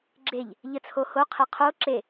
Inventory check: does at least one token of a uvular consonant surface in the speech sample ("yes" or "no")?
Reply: yes